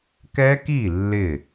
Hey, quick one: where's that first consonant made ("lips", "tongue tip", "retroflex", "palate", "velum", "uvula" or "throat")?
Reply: velum